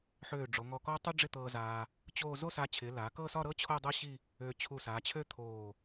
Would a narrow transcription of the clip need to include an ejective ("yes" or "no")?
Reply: no